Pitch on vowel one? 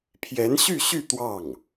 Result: rising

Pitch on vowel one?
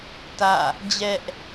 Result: falling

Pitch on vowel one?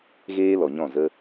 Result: high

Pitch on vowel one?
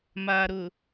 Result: low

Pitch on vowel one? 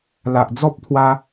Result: low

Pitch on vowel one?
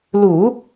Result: low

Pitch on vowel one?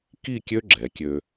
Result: falling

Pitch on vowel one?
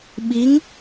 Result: rising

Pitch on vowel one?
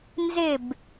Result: falling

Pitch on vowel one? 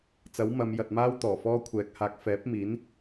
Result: rising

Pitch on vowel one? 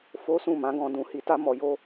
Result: high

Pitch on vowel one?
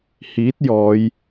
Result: rising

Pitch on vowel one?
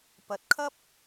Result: rising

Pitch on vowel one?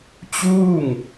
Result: falling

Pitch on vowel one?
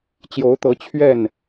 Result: rising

